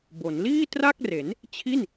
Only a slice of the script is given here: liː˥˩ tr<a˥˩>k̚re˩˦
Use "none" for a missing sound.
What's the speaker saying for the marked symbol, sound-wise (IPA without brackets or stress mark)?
a˥˩